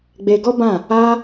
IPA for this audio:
ɡ͡b e˧ ɡ ɔ˦ b ã˦˨ | a˦

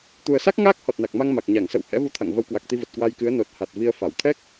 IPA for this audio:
t̪ u˨˩ ə̯ s a˦˥ k̚ ŋ aː˦˥ k̚ h ɔ˨˩ t̚ n a˨˩ k̚ m a˧ ŋ m a˨˩ k̚ ɲ a˧˩ ŋ s ə̰˧˨ w h ɛ̰˧˥ v u˧ t̪ʰ a̰˧˨ ŋ v ə˨˦ w k w a˨˩ k̚ t̪ i˧ v ə˨˩ t̚ k w a˧ j k ɨ˨˦ ə̯ n o˨˩ t̚ h a˨˩ t̚ v i˧ ə̯ f a˧˩ w t̪ʰ ɛ˦˥ k̚

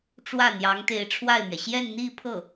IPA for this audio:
ʈ͡ʂ w ä˥˩ n̪ j ɑ˧˥ ŋ t̪ e˧˥ ɪ̯ ʈ͡ʂʰ w a˥˩ ɪ̯ m ɥ ɛ˩ ɕ j ɛ˥˧ n n̪ i˥˧ pʰ ɤ˥˩

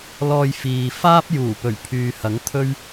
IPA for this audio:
l ɔː˧ j f iː˨ f aː˥ p̚ j uː˨˩ p ɵ˨˩ ɥ pʰ yː˨ h ɐ˨˥ ŋ t̪ʰ ɵ˥ ɥ

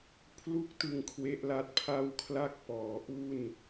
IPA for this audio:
pʰ l u˥˩ k̚ t ɯ˧ ŋ kʰ w e˦˥ ʔ l a˦˥ t̚ pʰ a˥˩ w kʰ l a˥˩ k̚ p ɔː˩˦ ʔ u˥˩ n

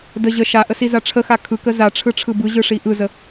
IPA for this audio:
d ə ʑ ə ʃ a ʔ ə s i z a ʈ͡ʂʰ ə x a kʰ ɯ k ə z a ʈ͡ʂʰ ɯ ʈ͡ʂʰ ɯ b ɯ ʑ ɯ ʂ i ʔ ɯ z ə

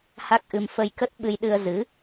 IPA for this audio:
h a˦˥ k̚ ʔ ɨ˧ m f ə˧ j k ə˦˥ t̚ ɓ ɨ˧ j ɗ ɨ˧ ə̯ z ɨ˨˦

